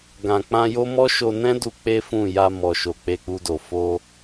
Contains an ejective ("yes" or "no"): no